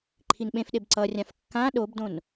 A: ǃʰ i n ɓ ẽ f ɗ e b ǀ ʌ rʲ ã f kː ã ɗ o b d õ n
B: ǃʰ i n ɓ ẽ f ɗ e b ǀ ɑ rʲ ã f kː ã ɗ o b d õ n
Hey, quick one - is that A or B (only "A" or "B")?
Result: A